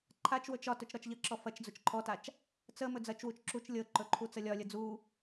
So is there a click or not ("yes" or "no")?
yes